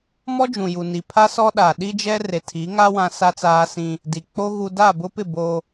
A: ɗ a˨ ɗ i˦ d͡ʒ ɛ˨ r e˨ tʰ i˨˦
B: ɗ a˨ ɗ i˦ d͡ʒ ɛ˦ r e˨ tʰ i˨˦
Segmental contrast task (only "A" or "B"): B